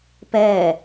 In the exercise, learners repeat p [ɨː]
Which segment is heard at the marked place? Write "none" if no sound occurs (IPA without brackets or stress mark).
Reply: ɛː